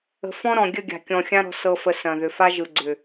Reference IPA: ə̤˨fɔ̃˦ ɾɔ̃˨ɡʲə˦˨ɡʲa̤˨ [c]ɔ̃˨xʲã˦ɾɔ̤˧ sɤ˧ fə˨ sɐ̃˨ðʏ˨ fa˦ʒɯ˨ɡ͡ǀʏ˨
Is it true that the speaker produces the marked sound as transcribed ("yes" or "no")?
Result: no